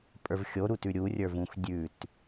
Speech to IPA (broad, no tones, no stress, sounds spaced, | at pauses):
pʼ ə˞ v xʲ o ɾ u t ʉ ɾʲ u rʲ ə˞ v ũ x dʲ ʉ t